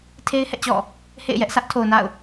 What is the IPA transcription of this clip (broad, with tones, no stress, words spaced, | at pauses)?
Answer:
tʰe˦ɪ̯hɛ̰˦˨t͡ɕɔ̰˦˨ | hḛ˦˨ɪ̯jɛ˦ʔ sä˦ʔtʰo˨ʊ̯na̰˦˨ʊ̯